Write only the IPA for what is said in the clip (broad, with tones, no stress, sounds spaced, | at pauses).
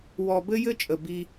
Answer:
w ɔ˨ b ɘ˦ j ɘ˦ t͡ʃʼ ə˨ b i˦